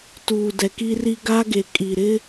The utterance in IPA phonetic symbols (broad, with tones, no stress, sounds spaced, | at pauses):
t uː˨ d ɛ˨ k i˦ r i˦ ɡ a˦ ɡ e˨ kʼ i˨ ɾ ɪ˦